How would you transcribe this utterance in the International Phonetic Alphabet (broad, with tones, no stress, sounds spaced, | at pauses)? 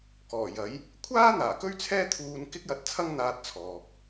k ɔː˨˩ j ɐ˨˥ j | kʷʰ aː˥ n̪ aː˨˩ k ɵ˥ ɥ t͡sʰ ɛː˥ t̪ʰ uː˧ n k ɪ˥ k̚ j ɐ˧ t̚ t͡sʰ ɐ˥ ŋ n̪ aː˧ t̚ t͡sʰ ɔː˨ k̚